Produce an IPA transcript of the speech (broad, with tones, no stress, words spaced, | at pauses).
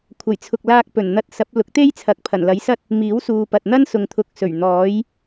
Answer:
kʷʰɐ˨˩jt͡sʰʊ˨k̚laː˧k̚pɵ˨˩n n̪ɐ˧t̚sɐ˨˥p̚ lʊ˨˥k̚t̪e˥jt͡sʰɐ˨˥k̚ pʰɐ˨˩n lɐ˨˥jsɐ˥t̚ | miː˨˥wsuː˨pɐ˨t̚ n̪ɐ˥nsʊ˨ŋt̪ʰʊ˨˥k̚sɵ˨˩ɥ n̪ɔː˨˥j